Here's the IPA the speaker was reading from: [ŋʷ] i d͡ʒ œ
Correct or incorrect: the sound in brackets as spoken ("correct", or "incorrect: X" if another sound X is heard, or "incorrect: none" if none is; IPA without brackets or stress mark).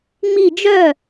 incorrect: ŋ͡m